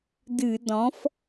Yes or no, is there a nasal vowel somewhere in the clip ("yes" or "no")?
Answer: yes